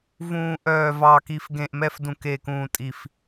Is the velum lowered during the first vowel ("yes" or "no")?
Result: yes